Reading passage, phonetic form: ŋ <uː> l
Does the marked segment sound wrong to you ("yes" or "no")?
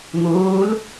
no